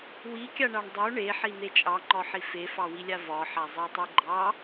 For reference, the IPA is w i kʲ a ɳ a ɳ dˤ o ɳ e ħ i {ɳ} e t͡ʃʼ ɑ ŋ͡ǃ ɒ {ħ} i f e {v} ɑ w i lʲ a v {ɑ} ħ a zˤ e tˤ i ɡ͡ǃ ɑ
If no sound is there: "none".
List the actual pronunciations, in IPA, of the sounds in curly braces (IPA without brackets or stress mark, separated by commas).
n̪, ħ, f, ɒ